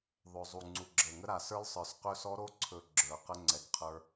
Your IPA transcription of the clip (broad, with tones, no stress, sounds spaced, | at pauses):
ðˤ ɵ˨˩ zˤ u˨˩ ŋ͡ǀ u˨˩ ɡ͡ǁ əː˨˩ ŋ ə˦˥ ɾ a˨˩ s ə˞˦˥ l sˤ ə˞˨˩ s q ɵ˦˥ s ɔ˦˥ ɾ o˦˥ ǀʰ ɵ˨˩ ɡ͡ǁ ə˞˨˩ q ə˦˥ ŋ͡ǀ ɛ˨˩ ɡ qʰ ə˞˦˥